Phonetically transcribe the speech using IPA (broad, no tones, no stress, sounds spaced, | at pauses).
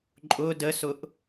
ǃʼ ʊ d ə s ʊ ʔ